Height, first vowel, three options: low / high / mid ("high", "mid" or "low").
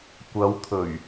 low